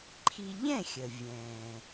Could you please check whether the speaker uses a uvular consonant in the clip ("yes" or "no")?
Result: no